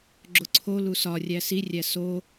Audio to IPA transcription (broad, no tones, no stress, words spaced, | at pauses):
ɡ͡ǁoǀʰo lusɒ rʲæsi rʲæso